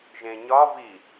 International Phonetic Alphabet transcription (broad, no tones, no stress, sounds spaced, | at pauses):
ʒ ẽ ɲ ɒ v i